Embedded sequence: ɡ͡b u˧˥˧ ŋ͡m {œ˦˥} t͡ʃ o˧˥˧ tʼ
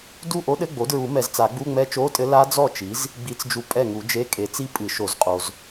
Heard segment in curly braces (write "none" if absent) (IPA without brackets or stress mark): ɛ˦˥